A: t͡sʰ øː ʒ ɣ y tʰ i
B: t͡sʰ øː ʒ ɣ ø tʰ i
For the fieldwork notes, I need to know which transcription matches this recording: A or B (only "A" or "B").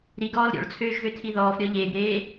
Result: B